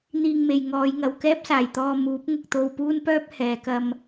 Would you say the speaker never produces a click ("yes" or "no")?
yes